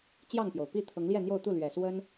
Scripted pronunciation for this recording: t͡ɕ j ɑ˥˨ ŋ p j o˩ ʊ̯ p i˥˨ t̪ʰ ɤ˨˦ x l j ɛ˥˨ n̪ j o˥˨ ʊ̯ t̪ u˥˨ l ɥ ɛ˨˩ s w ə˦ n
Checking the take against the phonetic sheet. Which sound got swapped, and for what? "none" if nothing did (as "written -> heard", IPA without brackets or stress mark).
x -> ŋ